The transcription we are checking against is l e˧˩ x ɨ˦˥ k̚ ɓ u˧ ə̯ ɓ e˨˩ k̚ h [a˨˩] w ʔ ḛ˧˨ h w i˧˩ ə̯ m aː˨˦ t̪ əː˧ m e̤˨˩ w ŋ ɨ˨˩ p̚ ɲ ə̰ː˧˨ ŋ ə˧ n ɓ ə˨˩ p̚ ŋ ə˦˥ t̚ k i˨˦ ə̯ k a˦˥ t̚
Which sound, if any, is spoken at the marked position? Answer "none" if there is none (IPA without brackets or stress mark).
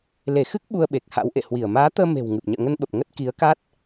a̰˧˥